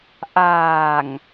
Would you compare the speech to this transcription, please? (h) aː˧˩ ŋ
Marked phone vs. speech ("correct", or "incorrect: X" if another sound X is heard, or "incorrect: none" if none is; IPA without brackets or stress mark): incorrect: ʔ